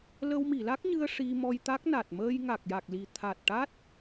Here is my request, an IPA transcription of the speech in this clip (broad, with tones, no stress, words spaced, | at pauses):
lə˧wmi˨˩˨la˦˥k̚ɲɨ˧ə̯ ʂi˧mɔ˧jt̪a˦˥k̚ na˨˩t̚məː˧j ŋa˨˩k̚ja˨˩k̚li˨˩ t̪ʰa˨˩t̚ʈa˦˥t̚